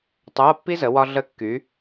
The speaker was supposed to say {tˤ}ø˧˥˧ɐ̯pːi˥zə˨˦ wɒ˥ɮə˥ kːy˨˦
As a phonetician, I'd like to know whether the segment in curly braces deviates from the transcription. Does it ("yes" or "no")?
no